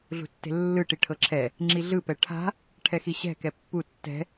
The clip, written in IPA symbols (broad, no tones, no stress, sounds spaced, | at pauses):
ɮ ṳ tː e̤ lː ɯ ʈ i ʈʰ ɤ ǁʰ ɛ | ŋ͡ǁ i ɮ ɯ p ɛ ʈʰ a̤ | ʈʰ ɛ x i ɕ ɛ̤ k ɛ pː u tː ɛ̤